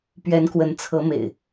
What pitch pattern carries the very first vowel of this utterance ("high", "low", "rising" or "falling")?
rising